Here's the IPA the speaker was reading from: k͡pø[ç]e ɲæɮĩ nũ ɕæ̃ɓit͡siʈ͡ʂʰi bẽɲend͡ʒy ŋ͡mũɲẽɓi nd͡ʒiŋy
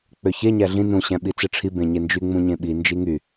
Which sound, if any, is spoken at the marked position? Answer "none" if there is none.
ç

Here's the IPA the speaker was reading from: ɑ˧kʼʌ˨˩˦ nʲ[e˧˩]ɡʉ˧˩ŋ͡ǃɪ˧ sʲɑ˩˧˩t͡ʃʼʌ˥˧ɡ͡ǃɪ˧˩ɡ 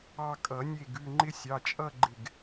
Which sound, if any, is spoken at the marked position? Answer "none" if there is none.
e˧˩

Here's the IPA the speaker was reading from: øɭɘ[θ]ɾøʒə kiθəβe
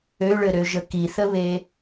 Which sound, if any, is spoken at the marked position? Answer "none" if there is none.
none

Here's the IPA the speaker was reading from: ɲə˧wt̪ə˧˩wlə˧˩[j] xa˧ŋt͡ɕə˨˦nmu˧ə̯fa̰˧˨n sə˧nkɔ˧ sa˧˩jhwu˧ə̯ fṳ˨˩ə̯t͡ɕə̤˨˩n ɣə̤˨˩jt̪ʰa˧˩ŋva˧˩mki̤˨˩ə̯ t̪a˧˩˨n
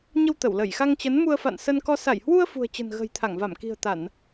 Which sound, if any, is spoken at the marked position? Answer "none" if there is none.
j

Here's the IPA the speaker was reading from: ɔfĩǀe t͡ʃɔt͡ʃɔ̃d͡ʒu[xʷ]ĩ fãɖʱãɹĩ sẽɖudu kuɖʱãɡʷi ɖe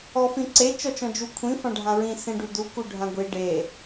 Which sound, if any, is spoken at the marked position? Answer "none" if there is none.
kʷʰ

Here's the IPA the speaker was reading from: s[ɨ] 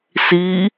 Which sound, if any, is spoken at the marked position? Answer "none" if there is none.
i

